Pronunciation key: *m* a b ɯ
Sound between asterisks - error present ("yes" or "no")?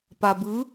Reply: yes